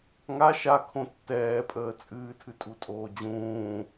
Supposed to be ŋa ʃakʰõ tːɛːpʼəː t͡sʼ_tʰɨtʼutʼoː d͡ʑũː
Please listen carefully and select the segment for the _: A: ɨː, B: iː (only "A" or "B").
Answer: A